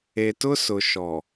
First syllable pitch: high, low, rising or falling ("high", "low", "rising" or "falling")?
low